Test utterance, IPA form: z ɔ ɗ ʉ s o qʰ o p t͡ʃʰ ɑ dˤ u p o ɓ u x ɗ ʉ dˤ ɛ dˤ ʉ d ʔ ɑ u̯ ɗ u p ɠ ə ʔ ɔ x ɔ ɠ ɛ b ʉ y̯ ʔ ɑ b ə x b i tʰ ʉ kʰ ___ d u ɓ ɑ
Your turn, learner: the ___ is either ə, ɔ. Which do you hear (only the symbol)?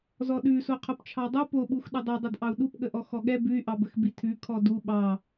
ɔ